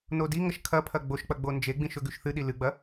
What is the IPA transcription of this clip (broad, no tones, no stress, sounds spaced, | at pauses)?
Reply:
n o d i ŋ ɐ ʃ kʰ ɐ pʰ ɐ ɡ͡b o ʃ k͡p ɐ ɡ͡b o n d͡ʒ e ɡ͡b ĩ ʃ ɵ ɡ ʉ ʃ θ ɨ ɗ i l ɨ ɡ͡b ɐ